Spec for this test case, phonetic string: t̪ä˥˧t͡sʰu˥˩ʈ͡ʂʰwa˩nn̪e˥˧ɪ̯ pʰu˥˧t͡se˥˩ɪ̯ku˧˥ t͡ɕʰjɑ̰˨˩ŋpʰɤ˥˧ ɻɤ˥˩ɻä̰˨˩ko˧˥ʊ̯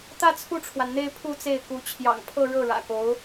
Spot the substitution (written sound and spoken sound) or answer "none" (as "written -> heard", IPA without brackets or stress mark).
none